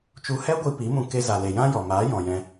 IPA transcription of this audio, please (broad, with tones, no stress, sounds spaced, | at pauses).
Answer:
t͡ʃ u˧ h ɛ˦ ɡʷ i˧ p i˨˦ m ũ˧ k e˧ z a˨ l e˨ j ã˦ j ɔ˨ m aː˨˦ j ɔ̃˨ j ɛ̃˧